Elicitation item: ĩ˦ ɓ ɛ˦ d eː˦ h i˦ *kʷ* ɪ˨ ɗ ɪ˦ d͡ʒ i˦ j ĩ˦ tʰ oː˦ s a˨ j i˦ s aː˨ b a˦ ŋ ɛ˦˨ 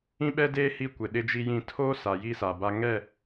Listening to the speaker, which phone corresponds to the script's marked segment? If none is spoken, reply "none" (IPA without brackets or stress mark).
kʷ